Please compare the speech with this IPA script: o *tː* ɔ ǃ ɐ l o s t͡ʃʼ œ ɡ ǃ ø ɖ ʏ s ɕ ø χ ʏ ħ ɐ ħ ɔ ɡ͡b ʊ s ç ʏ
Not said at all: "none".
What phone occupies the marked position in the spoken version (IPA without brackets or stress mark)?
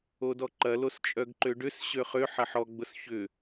d